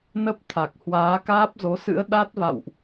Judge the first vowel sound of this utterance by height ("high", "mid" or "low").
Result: mid